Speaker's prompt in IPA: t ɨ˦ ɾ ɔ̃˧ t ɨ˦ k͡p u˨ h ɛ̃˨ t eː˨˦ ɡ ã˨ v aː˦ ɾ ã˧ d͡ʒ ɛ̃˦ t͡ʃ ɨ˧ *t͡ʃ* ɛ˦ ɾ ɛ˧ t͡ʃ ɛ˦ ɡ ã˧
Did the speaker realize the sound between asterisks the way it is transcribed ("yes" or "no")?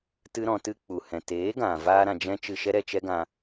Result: no